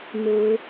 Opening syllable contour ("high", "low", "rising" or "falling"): rising